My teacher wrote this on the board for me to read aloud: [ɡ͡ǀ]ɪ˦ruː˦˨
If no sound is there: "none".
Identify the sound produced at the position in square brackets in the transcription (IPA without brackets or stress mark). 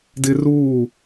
d